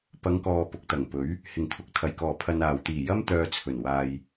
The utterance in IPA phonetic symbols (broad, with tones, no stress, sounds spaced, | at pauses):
p ɐ˨˧ ŋ k ɔː˨ p ʊ˨ k̚ t̪ ɐ˨˩ ŋ p ɵ˨˥ ɥ | h ɪ˨˩ ŋ t̪ʰ ʊ˨ k̚ t̪ʰ ɐ˨˩ j k ɔː˨˩ pʰ ɐ˨ n aː˨˩ w t̪ iː˨˩ j ɐ˥ m t̪ œː˧ t͡sʰ ɵ˨˩ n w aː˨ j